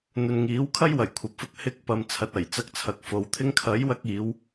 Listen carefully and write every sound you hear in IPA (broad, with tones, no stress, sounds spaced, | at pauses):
n̪ ɵ˨ n ŋ iː˨˥ w kʰ ɐ˥ j w ɐ˨˩ j kʷʰ ɐ˨ p̚ f ʊ˧ k̚ h ɪ˧ k̚ p ɐ˨ m t͡sʰ ɐ˨ t̚ ɐ˨˩ j t͡s ɐ˧ k̚ t͡sʰ ɐ˨ k̚ f o˨ w t̪ʰ ɪ˥ ŋ kʰ ɐ˨˥ j w ɐ˧ k̚ iː˨˧ w